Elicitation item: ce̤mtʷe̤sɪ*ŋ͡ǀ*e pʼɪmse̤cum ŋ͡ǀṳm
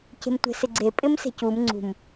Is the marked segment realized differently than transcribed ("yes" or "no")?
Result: yes